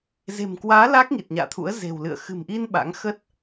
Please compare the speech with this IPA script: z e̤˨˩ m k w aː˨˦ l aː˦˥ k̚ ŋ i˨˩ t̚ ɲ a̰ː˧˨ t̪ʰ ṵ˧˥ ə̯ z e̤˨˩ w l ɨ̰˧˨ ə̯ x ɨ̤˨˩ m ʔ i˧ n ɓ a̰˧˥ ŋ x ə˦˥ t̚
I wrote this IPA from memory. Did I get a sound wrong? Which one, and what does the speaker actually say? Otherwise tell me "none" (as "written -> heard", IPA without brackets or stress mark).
none